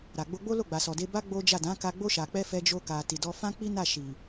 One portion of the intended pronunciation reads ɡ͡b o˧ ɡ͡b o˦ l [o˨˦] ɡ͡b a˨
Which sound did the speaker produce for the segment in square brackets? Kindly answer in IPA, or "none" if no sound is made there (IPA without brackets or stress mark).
o˦˨